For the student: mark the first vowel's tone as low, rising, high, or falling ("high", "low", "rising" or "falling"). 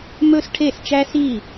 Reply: high